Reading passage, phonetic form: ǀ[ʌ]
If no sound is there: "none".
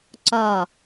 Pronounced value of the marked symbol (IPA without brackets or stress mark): ɒ